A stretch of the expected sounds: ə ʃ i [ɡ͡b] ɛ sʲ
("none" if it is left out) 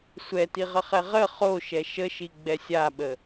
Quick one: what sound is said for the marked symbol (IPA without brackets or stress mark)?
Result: ɡ͡b